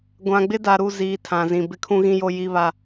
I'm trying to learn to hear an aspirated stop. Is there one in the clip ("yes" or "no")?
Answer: yes